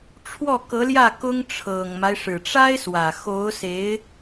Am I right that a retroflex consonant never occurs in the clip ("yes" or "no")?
no